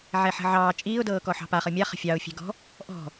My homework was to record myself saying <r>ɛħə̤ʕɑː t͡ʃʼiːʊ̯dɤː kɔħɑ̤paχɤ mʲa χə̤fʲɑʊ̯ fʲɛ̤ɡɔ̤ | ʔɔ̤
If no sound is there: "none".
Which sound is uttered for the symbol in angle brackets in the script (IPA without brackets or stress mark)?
ʕ